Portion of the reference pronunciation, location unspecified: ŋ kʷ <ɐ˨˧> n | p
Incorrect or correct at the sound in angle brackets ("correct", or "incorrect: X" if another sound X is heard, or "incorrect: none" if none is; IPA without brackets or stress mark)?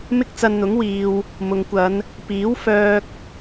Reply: correct